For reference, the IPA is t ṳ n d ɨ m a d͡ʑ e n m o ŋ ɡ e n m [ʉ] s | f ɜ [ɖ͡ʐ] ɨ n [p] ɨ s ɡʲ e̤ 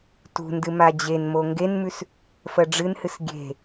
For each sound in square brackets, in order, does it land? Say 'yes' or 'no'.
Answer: yes, yes, no

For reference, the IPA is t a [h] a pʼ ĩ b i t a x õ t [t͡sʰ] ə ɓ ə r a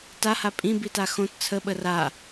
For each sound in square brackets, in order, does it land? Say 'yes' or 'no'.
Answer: yes, yes

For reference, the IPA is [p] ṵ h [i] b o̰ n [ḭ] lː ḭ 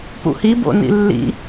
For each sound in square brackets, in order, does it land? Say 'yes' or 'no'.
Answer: yes, yes, yes

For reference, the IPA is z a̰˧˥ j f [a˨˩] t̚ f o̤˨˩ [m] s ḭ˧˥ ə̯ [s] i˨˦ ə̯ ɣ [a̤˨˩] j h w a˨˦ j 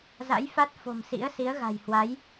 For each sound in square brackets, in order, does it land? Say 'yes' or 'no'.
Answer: no, yes, yes, yes

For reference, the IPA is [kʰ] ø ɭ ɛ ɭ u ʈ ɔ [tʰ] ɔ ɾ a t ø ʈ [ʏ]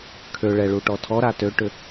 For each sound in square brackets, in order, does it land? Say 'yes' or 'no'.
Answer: yes, yes, yes

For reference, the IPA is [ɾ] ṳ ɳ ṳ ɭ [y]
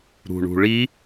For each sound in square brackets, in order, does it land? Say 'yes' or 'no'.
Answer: yes, no

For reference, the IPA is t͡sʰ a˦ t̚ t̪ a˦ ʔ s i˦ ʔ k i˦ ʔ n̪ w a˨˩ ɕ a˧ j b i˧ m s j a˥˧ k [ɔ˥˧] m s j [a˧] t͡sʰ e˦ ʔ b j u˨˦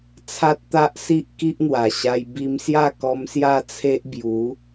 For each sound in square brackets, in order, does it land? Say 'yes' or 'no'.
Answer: no, no

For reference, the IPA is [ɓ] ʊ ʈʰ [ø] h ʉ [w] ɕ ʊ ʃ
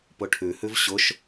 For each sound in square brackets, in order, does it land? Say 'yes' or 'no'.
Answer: no, no, no

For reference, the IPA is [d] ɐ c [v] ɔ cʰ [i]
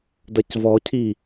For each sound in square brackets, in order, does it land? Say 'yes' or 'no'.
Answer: yes, yes, yes

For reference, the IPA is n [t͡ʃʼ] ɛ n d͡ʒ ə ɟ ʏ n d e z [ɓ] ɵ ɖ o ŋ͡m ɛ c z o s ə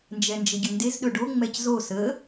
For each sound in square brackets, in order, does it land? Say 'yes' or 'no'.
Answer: no, no

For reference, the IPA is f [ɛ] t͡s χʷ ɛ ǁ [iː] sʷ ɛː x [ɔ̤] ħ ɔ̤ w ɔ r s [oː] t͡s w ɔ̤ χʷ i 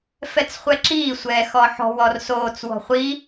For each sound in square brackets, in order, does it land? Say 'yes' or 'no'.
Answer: yes, yes, no, yes

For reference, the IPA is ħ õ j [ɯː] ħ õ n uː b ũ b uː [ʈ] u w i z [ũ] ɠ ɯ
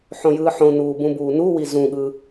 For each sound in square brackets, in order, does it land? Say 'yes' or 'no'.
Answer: yes, no, yes

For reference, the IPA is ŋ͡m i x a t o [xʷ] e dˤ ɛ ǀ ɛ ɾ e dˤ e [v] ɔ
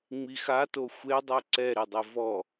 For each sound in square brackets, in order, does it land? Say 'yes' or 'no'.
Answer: yes, yes

